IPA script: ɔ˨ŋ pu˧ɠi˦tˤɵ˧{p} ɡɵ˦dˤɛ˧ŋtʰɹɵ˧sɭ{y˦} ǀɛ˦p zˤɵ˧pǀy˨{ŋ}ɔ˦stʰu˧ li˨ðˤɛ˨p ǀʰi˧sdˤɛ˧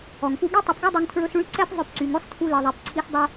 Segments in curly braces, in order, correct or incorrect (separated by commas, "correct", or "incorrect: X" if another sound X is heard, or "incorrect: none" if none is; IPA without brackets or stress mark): correct, incorrect: y˧, correct